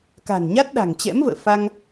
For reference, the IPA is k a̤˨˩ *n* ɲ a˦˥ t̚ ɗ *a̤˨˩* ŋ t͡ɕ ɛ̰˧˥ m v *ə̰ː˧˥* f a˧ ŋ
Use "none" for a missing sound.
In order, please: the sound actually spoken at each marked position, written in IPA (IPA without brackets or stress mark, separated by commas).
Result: n, a̤˨˩, ə̰ː˧˨